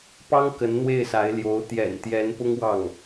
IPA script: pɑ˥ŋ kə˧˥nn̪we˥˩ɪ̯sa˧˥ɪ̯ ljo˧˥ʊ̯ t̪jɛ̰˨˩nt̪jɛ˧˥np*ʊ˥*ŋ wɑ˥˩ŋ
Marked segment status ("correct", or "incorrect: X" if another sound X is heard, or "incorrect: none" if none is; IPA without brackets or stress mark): correct